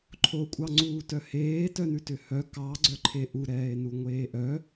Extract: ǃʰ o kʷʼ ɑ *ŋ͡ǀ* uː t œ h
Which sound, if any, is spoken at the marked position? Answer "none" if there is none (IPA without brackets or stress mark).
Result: ŋ͡ǀ